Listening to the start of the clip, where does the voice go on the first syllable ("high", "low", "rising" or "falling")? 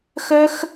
high